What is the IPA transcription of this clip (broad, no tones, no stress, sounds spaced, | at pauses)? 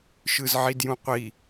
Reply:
ʃ ɯ z ʕ i d j ũ qʷ i